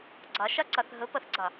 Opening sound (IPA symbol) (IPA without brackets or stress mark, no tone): ɡ͡ǀ